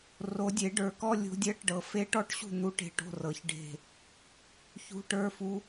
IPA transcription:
r o˨˩˦ dʲ e˨˩˦ ɖ ə˞˨˩˦ k ɔ˧˥˧ lʲ o̤˧˥ dʲ ɜ˧˥˧ ʈ ɖ ɤ˨˩˦ f e˧˥ ʈ ɔ˥˩ ʈ ɕ ṳ˥˩ n̪ u˧˥ ʈ e̤˧˥ ʈ o̤˧˥˧ r ɤ˨˩˦ ç ɖ e̤˥˩ | ç ṳ˧˥˧ ʈ ə˞˧˥˧ f u˧˥

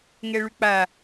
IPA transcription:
ŋ ɛ ɭ ʉ k͡p a

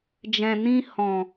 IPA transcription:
d͡ʒ ɛ̃˨ n ĩ˧ h ɔ̃˨

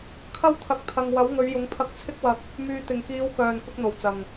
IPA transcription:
kʰ ɐ˥ w t̪ʰ ɐ˨˥ k̚ t̪ʰ ɐ˨ ŋ w ɐ˨˥ w ŋ ɵ˨˧ ɥ j ʊ˨˧ ŋ pʰ ɐ˧ k̚ t͡sʰ ɪ˥ k̚ w ɐ˧ k̚ | m yː˨ t̪ ɪ˨˩ ŋ k iː˨˧ w k œː˨˩ n k ʊ˧ k̚ n̪ o˨˩ w t͡s ɐ˨˩ ŋ

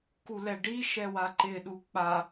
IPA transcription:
k u l ɛ ɖ i ʃ ɛ w a ǃ ɪ ɗ u k͡p a

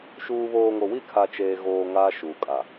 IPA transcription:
ʃ uː˨ β oː˨ ŋ o˨ w i˦˨ kʰ a˨ t͡ʃ eː˨ ɣ oː˨ ŋ aː˦ ʃ uː˨ kʼ a˨

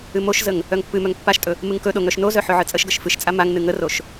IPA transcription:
ɨ m o ʃ z ə ŋ | œ ŋ pː ɨ m œ ŋ pː a ʃ tʼ ɵ | m ɨ ŋ k ɵ ɗ o ŋ œ ʃ n o z œ ħ ɵ ʕ ɨ t͡sʼ ə ʃ ɡ ə ʃ f ɨ ʃ t͡sʼ a m a ŋ n ɨ ŋ ə r o ʃ

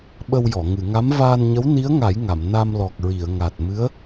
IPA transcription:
ɓ ə˧ w j ɔ˨˩˨ ŋ ɨ˨˩˨ ŋ a˧˥ m v aː˧ n ɲ ə˧˥ w n i˧˥ ə̯ ŋ a˨˩˦ j ŋ a˨˩˨ m n a˧ m l ɔ˨˩ k̚ ɹ i˨˩˨ ə̯ ŋ a˨˩ t̚ m ɨ˧˥ ə̯

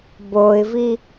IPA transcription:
b o ɪ̯ v i

